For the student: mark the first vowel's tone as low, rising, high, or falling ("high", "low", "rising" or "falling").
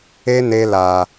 high